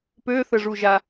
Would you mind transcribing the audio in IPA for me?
pøθəʐuʒa

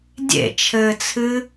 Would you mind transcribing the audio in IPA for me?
dʲḛt͡ʃʰɘːt͡sʰɨ

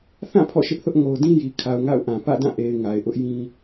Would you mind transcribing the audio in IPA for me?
θã˦˨ pʰɔ̰˦˨ʃɪ˦ʔθʊ˦ʔ ŋo˨ʊ̯dĩ˦ji˨ kʰa˨ʊ̯ŋa̰˦˨ʊ̯ʔã˨ pä̰˦˨dã˦˨ ʔe˨ɪ̯ ŋa˨ɪ̯ʔʊ˦ʔjĩ˦

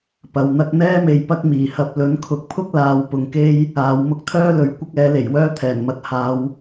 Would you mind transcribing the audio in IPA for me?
pɐ˨wn̪ɐ˥k̚ n̪ɛː˥me˨j pɐ˥k̚miː˨˩hɐ˧p̚ lɵ˨˥nkʰʊ˨˥k̚pʰʊ˥k̚ laː˨˧w pʊ˨ŋke˥j | aː˨˧w mʊ˥k̚t̪ʰœː˥lɵ˨ɥ kʷɪ˥k̚ɛː˨˥ le˨˩jwœː˥ t̪ʰɛː˨˩nmɐ˨˥t̚haː˨˧w

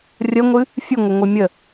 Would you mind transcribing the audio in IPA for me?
rʲəŋʷɨ | fʲɨŋʷəŋʷɨ mʲə

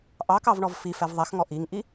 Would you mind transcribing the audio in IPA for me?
ʔɑkɑvɳɔv fifɛv ðˤɛxŋɔ ʔiŋʔi

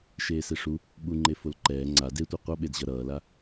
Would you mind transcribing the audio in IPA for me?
ʃeːseʂu | ɓuŋ͡ǃe folǃɛː ŋ͡ǀa detʷa qʷʌɓedʑʌ ɾʌːla

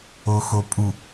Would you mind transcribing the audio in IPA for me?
oxopʼu

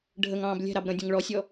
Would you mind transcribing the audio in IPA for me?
ɖʱəŋɑ̃ːb lʲɛ̤ɾɑb ɾə̃dʲə̃ŋ ɭɔsʲɔ

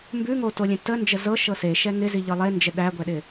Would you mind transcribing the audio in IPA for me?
mbʉŋotolʲẽ tənd͡ʒə zɤʃɤ seʃɛ ŋɪziʎɤ lˠend͡ʒə ɗæɡʷɛɗɪ

